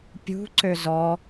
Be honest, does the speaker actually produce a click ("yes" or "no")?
yes